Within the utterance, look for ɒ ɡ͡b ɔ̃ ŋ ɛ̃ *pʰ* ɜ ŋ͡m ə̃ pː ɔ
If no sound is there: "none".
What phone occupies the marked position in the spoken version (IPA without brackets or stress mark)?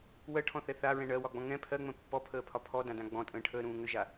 pʰ